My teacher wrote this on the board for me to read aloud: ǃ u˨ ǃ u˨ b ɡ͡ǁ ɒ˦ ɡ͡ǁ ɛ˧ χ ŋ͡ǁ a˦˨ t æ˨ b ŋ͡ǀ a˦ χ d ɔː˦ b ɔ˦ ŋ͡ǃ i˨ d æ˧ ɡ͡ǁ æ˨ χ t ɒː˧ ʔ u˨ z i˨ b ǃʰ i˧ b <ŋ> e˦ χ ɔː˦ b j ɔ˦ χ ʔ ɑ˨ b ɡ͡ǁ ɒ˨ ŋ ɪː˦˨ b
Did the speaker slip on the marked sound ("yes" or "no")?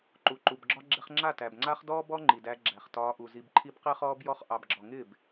yes